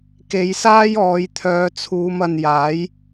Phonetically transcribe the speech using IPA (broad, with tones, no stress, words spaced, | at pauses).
ke˨˧jsaː˥j ɔː˨˧jt̪ʰœː˨˧ t͡sʰuː˨˧m ɐ˨njaː˨˥j